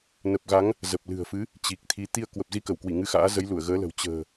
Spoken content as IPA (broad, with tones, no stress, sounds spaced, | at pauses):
n ə˨˩ p̚ ɣ a˨˦ ŋ | z ə˨˩ p̚ l ɨ̤˨˩ ə̯ f ɨ˨˦ | t͡ɕ i˨˩ k̚ t̪ʰ i˨˦ t̪ i˧ ə̯ k w ə˨˩ p̚ z i˧ k ə˧˩ w k w i˧˩ ŋ ɨ˧ x a̰ː˧˥ z ə˨˦ j l u˧˩ ə̯ ɣ əː˨˦ l ə̤˨˩ w t͡ɕ ə̤ː˨˩